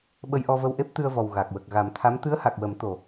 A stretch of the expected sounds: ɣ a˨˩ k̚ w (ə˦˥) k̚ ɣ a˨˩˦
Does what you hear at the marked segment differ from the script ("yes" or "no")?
yes